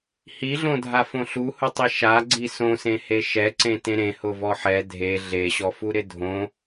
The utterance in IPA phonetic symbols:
h i ɮ õ dʱ a f õ ɬ u h ʊ tˤ i ʃ a ɡ͡ǀ i s õ s ẽ h e ʃ ɛ ǀ ẽ t ẽ ɾ ẽ h ʊ v ɔ ħ ɛ dʱ e ɮ e ɕ ɔ f u ɾ ɪ dʱ õ

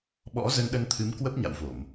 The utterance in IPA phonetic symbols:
ɓ ɔ̰˧˥ z ə˧ n ɗ ə˧ n t̪ʰ ɨ˨˦ m k w ə˦˥ p̚ ɲ a̰˧˨ w v o˧˩˨ m

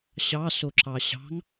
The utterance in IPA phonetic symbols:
ɕ ɑ s o ǁ ɑ ɕ ɑ̤ ŋ

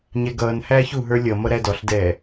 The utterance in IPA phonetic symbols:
ɲ ɛ ɡ ʌː n h æː ç u ɦ ə˞ lʲ ʌ m ʌ ɾ æ d ɔ ɬ d ɛː

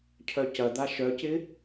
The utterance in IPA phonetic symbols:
cʰ œ c ɐ d̪ a ʃ œ c ɪ

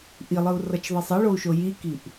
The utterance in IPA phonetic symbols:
ʔ i lˠ ɯ u̯ r ʌ t͡ʃ ðˤ i sˤ ʌ ɭ o u̯ ʃ o j i k i ʔ

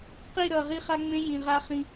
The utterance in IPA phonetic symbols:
q i˦˨ ɾ ʌ˨ ʁ i˦ χ a˦ ŋ͡m ẽ˦ j ĩ˨ ʁ a˦ χ ĩ˦

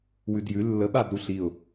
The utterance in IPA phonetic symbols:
w ʉ d j ʉ lː ə ɓ a d ɾ u ɬ i ʊ̯

